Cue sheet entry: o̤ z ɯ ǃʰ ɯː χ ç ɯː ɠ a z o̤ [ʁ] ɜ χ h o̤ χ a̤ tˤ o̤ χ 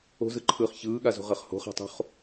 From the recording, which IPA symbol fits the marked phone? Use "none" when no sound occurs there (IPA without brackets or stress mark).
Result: ʁ